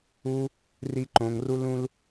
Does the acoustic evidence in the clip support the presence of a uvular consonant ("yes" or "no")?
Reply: no